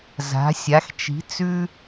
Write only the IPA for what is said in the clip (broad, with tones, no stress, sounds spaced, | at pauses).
z a̤˩˧ sʲ a˩˧ x t͡ʃ i̤˩˧ t͡s ʉ˧